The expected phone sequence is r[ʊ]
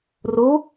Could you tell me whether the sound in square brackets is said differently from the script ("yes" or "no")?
yes